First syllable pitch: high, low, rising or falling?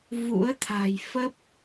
rising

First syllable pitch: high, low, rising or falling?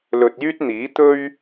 low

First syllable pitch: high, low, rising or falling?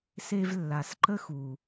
high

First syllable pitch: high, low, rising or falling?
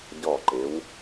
falling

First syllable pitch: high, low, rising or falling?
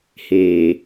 low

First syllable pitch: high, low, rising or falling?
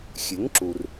rising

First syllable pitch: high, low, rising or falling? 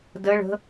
rising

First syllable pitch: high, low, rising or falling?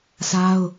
high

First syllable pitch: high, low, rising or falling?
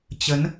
rising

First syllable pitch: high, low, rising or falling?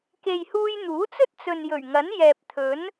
low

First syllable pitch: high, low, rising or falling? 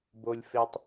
low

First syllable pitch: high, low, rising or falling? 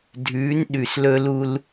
rising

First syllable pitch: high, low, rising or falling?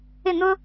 falling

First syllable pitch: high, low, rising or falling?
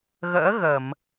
rising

